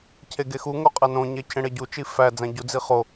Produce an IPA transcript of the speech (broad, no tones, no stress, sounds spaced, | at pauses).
cʰ e ɡ e x u ŋ o qʼ æ n õ ɲ e cʰ ẽ ɽ e ɟ u t͡ʃ i f æ d͡z æ̃ ɟ u d͡z i χ o